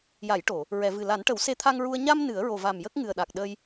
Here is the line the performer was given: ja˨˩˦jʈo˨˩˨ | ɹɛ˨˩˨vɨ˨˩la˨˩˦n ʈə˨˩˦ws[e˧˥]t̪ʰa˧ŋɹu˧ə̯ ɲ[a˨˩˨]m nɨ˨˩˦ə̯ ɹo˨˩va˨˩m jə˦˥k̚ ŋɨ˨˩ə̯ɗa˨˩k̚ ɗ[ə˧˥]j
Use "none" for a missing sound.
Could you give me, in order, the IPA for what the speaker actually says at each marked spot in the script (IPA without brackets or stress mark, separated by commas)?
e˧˥, a˧, ə˧